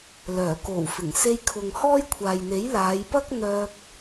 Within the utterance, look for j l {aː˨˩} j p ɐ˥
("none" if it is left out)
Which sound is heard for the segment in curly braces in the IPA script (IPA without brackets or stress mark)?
aː˨˧